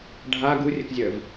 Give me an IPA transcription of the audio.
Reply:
ɖʱ a ɡ u rʲ ə k zʲ œ v

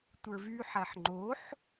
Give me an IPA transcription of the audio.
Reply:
tʷ ə˞ v y ħ æ ħ ŋ͡ǃ o ħ

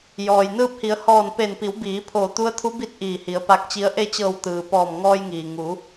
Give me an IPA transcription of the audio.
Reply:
j ɔː˩ j n ɯː˧ p̚ h i˩˧ ə̯ h ɔː˧˩ n p e˧˩ n p i˩˧ w b iː˩˧ pʰ oː˧˩ t̪ u˧˥ ə̯ t̪ʰ u˧˥ b i˧˥ t̚ ʔ iː˧˩ h i˩˧ ə̯ p a˧ k̚ t͡ɕ i˧˥ ə̯ ʔ e˧ t͡ɕ ɤː˧˩ w t̪ ɯː˩ p ɔː˧˩ m ŋ ɔː˧ j ŋ iː˩ ŋ u˩˧

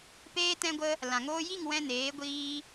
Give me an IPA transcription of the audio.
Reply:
p eː˦ t ɛ̃˦ ɡʷ ə˦ | l ã˨ ŋ oː˧ j i˦˨ ŋ w ɛ̃˧ n eː˨˦ ɡʷ iː˧

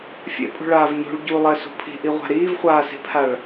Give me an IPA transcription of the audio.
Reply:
fʲ ḛ pʼ ṳ ɭ aː v ɲ ṳ ɭ ɟ u lˠ ɜ s ṳ pʰ i̤ ʔ i ʁʷ a̤ ɾ iː v χʷ aː s i̤ pʰ a ɭ

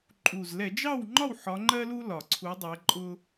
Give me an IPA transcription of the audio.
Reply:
ǃʼ u˨˩ z l ɛ˧˩˧ d͡ʒ ɑ˥˨ w ŋ͡ǃ ɒ˥˨ w ħ ɒ˨˦ ŋ͡ǃ ɜ˦ l u˦ l ɒ˨˩ ǀʰ u˨˦ dˤ æ˨˦ ǃʼ ʊ˦

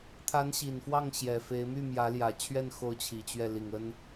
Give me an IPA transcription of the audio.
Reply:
t̪ʰ a˧˥ n ɕ i˨˩ n f w ɑ˥˩ ŋ ɕ j ɛ˨˩ f e˧˥ ɪ̯ m y˥˩ m j ä˧˥ l j ä˨˩ t͡ɕʰ ɥ ɛ˥˩ n x o˧˥ ʊ̯ t͡ɕʰ i˨˩ t͡ɕ ɥ ɛ˥˩ l i˨˩ ŋ ə˥ n

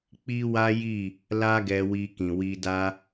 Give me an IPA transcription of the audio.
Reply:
k͡p i˦ w a˦ j i˦˨ | l a˦ ɡ ɛ˧ w i˧ k ĩ˨ w i˧ d a˦

